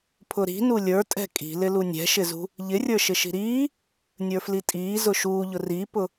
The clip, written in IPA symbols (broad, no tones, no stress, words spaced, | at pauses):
pʰʊɾi̤nu lʲə˞tʼɛ̤ kʼi̤lɪ lunʲɛ̤ʃɪzṳ | ʎɪrʲə˞ ʃɪʃi̤ɾiː | nʲə˞flitʼiː zʊʃuːʎʊ ripʊ